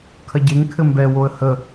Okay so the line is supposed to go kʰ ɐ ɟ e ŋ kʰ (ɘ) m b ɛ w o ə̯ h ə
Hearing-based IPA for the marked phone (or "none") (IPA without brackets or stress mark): ɘ